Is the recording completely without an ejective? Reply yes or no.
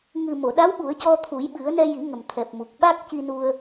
yes